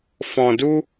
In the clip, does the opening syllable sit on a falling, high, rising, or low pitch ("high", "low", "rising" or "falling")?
low